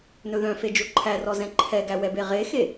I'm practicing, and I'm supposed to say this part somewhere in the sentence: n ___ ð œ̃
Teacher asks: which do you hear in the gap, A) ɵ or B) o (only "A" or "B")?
A